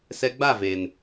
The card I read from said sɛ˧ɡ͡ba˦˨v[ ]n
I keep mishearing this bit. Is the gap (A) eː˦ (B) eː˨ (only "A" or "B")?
B